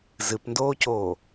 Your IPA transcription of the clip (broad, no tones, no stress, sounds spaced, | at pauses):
z ɨ p n d oː c oː